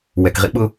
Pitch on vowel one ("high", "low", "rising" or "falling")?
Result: low